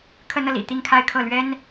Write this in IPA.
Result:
kʰ ə˥ n ɤ˨ l ḭ˨˩ t̪ i˥˧ ŋ kʰ a˥˧ ɪ̯ kʰ ɤ˥˩ l ɥ ɛ˥ n

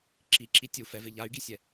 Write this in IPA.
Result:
ǁ i ǁ i tʲ u f ɛ v ɪ ʎ a y̯ ɡ i sʲ ɛ

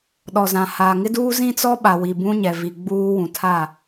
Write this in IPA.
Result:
ɗ ɔ˨ z ã˨ h aː˨ ŋ ɪ˦ d uː˦ z ĩ˦ t͡s ɔ˦ ɓ a˨ w i˨ b ũ˦ ɲ ɛ˨ v i˨ ɡ͡b uː˦ w ũ˨ tʰ a˦˨

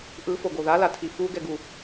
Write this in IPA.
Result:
ʔ ɯ f o ɡ o ð a l a tʰ i f u ɡ ɛ ɡ u

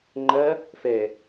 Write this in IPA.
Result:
ŋ͡ǃ ɐ | f ɛ

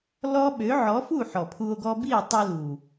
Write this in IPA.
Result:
l ɔ˦ ɓ ø˨˦ ʕ ɔ˨˦ f u˦˨ ħ ɔ˨ pʰ u˧ o̯ ɡ ɔ˦ b i˦˨ e̯ tˤ ɛ˧ l u˨

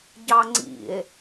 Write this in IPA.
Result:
ɟ ɑ ŋ͡ǀ ḭ e̯

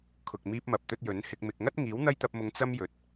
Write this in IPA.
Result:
kʰ ʊ˨ k̚ m iː˧ p̚ m ɐ˨ p̚ t̪ ɵ˧ t̚ j ɵ˨˥ n h ɪ˧ k̚ m ɪ˨ k̚ ŋ ɐ˥ t̚ ŋ iː˨˥ w n̪ ɐ˥ j t̪ ɐ˧ p̚ m ʊ˨˧ ŋ t͡s ɐ˥ m j ɵ˨ t̚

